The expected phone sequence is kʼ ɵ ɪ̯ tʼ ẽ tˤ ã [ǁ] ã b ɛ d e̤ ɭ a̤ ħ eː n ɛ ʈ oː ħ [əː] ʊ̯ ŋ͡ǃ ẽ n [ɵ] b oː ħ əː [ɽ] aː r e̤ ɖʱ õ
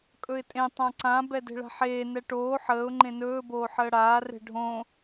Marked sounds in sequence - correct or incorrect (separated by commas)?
incorrect, correct, incorrect, correct